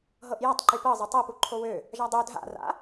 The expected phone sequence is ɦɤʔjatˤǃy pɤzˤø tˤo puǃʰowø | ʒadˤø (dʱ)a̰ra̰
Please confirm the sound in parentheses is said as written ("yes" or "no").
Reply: yes